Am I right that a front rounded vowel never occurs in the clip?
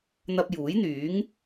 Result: no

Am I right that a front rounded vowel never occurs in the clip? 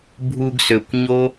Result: no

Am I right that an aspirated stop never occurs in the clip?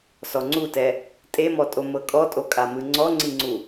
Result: yes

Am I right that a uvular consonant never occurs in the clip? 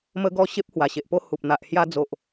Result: yes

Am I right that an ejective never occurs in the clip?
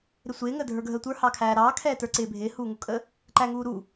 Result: no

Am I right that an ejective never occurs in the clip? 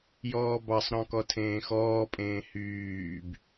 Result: no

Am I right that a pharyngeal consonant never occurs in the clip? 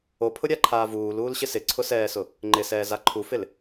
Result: yes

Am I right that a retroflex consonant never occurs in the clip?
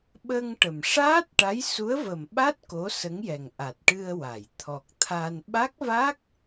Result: no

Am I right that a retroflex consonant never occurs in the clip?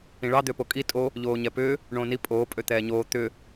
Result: no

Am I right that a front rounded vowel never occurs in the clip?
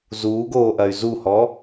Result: no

